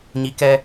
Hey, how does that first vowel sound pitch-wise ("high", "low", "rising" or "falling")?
rising